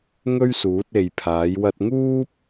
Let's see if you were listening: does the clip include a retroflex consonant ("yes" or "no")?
no